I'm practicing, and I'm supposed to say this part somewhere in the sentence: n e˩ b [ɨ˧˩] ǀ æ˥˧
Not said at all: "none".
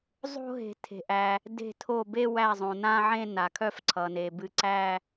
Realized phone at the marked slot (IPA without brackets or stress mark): ɨ˧˩